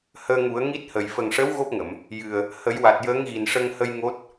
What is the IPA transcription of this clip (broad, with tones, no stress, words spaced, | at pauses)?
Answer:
həː˧ŋu˨˩˦ə̯ ŋi˦˥t̚hə˨˩j fə˨˩ŋʂəː˧˥w ɣo˦˥p̚ŋə˨˩˨m | jɨ˨˩ə̯ | hə˨˩˦j wa˨˩t̚jəː˧˥ŋɣi˨˩n ʂə˧ŋhə˧j ŋo˦˥t̚